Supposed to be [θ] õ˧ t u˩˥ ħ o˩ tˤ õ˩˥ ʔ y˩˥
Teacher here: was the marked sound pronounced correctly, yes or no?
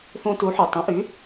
yes